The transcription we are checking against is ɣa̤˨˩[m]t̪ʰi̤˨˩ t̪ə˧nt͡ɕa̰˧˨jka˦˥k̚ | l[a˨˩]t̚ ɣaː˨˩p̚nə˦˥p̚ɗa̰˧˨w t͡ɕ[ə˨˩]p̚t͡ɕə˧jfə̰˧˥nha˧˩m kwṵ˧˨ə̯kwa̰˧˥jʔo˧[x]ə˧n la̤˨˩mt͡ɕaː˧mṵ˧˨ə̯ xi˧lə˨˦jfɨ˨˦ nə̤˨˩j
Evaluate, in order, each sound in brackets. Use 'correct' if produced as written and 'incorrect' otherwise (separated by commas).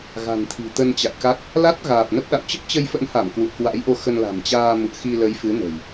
incorrect, incorrect, incorrect, correct